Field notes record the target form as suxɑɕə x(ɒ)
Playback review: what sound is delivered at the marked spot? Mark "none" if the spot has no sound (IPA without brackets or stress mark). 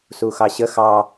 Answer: ɑ